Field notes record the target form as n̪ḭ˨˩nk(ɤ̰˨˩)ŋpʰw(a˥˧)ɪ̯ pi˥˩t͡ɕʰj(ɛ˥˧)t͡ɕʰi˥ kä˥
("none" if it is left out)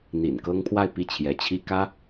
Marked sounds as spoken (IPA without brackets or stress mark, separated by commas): ɤ˥, a˥˧, ɛ˧˥